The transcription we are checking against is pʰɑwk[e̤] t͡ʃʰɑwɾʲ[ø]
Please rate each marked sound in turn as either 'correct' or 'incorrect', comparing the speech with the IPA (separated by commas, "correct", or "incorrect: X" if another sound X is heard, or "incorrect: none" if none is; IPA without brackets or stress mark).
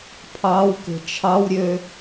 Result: correct, correct